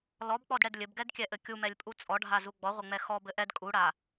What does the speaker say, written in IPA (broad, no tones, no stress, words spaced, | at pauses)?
lɔbk͡pɔdɽɛd lʲɘbɡɛdkʲɛʔɘ kʲumɛlʲpʼu t͡sʼɔɖʱazu ɡ͡bɔʁʷɘŋ͡mɛ xɔbɘ ʔɛd kʼuɽa